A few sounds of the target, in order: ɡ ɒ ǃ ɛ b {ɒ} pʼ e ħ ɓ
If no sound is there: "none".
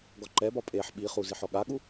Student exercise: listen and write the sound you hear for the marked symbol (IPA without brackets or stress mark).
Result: ɒ